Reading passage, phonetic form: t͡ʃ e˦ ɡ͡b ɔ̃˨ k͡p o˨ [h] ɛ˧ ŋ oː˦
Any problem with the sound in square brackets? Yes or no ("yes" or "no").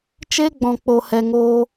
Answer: no